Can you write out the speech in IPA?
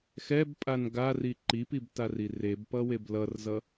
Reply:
xɛbpʼan ɡari ǃipibtari rebpʌweb lʌrzʌ

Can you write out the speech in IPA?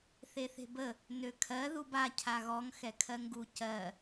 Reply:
θeθe̤bə | nøkʰɜ ðuba cʰaɣɔŋ xɛkʰɜŋɡu cɜ

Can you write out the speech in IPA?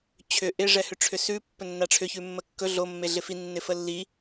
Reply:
t͡ɕʰʏ ʔɪ ʐɛhʏʈ͡ʂʰʏsʉ pːɵnːaʈ͡ʂʰʏ çʉmːəkːɵ ɮo mːeɮɪfi nːɪfəlːi

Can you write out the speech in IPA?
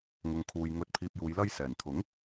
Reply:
ŋʊ˨ŋkʰuː˨j ŋɵ˨˥t̚pʰiː˨p̚juː˨˧j lɐ˧j sɛː˨˩n t̪ʰʊ˨˥ŋ

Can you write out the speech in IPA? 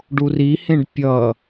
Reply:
ɖurihẽɖ pʲʌ

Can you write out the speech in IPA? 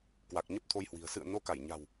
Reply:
kwa˨˩k̚ɲə˦˥p̚t̪ʰo˧jhwi̤˨˩ə̯ sɨ̰˧˨ə̯ no˧ka˧˩jɲa̤˨˩w

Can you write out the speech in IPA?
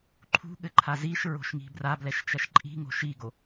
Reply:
ǃʰṳɠɘǃʰa ziʃɹo̤ʃŋi̤ brablɛʃt͡ʃɐʃ ǃʼi̤ŋo̤ ʃiɡo

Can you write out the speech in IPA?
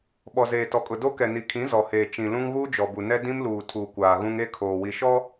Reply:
ɓɔ˨zeː˨tɔ˨kʼʊ˨ do˦ kɛ˨ni˨ kʰĩ˨˦zɔ˨heː˨ t͡ʃĩ˨ lũ˦ŋɣuː˦d͡ʒɔ˨bu˨ nɛ˦ dĩ˦mluː˨ tʰu˨kʷaː˨ɣũ˦ŋ e˦ kʰoː˨wi˨ʃɔ˦

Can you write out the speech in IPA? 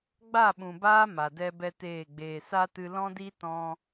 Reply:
ɡ͡ba˦˨ɓũ˨baː˧ ma˨dɛ˦bɛ˦teː˦˨ ɡ͡beː˨sa˦tɨ˧ lɔ̃˦di˦ tɔ̃˦

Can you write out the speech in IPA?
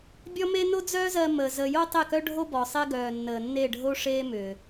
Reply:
bʲɔ˦me˦ no˦d͡zœː˦zɜ˧ məː˨ zəː˧ jo˦tˤe˦˨kœ˦ɖʱo˦ bɔ˨sˤe˦ɡœː˨nːəː˨ nːe˦˨ɖʱo˦ʂeː˦ mʏː˨

